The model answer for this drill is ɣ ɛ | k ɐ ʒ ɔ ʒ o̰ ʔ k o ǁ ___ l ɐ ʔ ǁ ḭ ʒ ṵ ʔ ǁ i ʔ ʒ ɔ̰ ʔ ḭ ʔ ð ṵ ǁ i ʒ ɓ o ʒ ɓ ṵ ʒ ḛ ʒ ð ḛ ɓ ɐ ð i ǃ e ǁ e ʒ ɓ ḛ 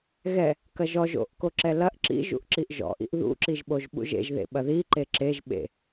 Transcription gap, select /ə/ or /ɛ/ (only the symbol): ɛ